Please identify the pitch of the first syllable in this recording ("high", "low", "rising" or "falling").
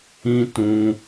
high